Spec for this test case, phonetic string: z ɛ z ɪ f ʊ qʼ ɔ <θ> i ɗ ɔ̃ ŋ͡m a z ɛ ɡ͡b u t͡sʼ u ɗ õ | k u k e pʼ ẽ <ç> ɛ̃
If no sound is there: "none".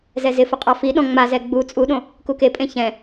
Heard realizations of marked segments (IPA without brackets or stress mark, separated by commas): f, ç